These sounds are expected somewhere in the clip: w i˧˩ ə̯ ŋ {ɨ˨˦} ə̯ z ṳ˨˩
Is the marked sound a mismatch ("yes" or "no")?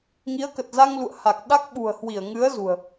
no